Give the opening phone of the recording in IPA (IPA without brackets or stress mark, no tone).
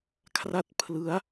kʰ